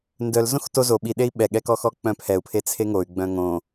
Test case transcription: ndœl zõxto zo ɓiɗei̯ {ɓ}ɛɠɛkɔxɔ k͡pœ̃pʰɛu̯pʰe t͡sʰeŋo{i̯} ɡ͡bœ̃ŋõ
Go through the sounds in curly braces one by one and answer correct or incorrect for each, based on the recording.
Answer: correct, incorrect

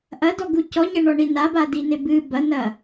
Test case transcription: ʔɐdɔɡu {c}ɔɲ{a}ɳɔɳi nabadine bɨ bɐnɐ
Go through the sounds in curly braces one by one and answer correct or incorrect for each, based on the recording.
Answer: correct, incorrect

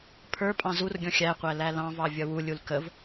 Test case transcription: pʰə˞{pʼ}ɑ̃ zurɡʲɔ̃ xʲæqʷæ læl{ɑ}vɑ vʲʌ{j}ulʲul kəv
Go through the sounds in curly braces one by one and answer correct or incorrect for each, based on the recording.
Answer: correct, incorrect, incorrect

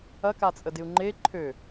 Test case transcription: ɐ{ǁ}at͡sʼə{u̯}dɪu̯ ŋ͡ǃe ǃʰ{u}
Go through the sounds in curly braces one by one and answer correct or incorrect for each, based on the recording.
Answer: incorrect, incorrect, incorrect

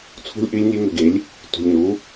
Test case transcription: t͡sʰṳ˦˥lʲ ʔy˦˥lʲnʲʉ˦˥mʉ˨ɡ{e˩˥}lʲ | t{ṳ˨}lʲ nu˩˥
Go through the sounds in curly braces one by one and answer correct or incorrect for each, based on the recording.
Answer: correct, correct

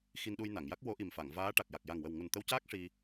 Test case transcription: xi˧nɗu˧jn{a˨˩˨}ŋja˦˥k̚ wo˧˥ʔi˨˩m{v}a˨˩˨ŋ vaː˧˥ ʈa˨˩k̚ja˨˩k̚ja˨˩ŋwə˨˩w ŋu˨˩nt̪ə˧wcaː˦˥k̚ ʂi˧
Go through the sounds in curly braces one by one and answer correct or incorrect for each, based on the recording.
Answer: correct, incorrect

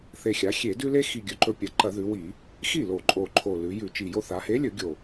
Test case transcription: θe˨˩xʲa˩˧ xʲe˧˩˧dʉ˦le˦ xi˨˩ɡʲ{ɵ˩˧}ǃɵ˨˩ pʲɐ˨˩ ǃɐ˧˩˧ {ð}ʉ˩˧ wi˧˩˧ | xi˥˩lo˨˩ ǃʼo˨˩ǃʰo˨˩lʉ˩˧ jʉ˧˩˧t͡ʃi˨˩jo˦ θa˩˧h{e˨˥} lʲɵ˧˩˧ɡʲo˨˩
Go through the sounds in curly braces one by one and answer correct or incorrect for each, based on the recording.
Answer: correct, correct, correct

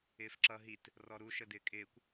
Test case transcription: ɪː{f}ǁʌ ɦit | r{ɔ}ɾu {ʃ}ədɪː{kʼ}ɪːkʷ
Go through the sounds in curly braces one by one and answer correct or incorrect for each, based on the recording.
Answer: correct, correct, correct, correct

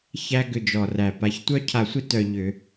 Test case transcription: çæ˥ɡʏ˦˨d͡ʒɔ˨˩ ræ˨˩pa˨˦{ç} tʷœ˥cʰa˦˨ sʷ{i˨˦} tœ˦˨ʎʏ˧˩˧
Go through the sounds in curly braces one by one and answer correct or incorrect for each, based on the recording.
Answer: correct, incorrect

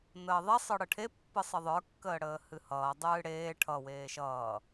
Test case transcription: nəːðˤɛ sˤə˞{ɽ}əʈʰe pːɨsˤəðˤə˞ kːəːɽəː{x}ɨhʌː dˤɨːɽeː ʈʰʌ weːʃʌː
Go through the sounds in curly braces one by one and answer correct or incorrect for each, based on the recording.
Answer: correct, incorrect

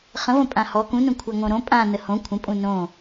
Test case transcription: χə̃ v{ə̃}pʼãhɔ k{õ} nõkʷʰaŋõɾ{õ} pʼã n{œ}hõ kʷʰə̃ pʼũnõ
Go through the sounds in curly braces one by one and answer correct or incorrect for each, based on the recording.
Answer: correct, incorrect, correct, incorrect

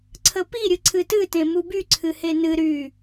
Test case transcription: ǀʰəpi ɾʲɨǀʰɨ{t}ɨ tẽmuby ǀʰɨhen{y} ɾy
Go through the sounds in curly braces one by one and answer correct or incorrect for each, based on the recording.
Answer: correct, incorrect

